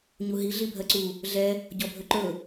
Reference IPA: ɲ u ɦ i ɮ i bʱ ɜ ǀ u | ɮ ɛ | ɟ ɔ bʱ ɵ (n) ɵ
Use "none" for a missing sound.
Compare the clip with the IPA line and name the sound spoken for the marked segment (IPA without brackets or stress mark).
ǃ